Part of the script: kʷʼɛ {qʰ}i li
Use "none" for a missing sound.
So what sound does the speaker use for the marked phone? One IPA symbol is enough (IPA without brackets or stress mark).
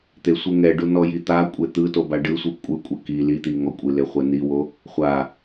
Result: k